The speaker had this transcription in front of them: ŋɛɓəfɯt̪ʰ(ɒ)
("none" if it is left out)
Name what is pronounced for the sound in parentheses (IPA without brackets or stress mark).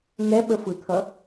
ʌ